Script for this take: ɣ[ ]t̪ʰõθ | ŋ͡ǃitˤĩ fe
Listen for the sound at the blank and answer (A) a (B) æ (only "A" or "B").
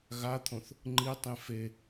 A